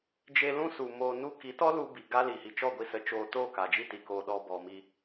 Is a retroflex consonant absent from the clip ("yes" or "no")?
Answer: yes